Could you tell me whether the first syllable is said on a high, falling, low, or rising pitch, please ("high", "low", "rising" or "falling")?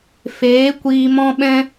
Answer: rising